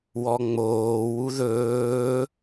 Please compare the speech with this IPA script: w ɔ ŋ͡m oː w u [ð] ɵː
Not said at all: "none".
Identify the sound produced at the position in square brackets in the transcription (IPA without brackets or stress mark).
ð